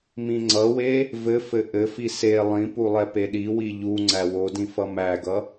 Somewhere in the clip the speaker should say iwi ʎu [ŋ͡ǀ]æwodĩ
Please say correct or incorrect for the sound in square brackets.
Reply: correct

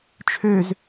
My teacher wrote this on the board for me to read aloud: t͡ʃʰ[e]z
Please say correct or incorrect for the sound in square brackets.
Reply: incorrect: ø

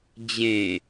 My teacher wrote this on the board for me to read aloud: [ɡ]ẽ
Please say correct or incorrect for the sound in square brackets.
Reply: incorrect: d͡ʑ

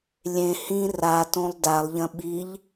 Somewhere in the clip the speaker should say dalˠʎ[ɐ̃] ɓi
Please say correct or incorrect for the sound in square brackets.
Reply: correct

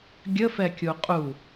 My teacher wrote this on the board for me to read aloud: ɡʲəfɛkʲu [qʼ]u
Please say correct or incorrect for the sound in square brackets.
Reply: correct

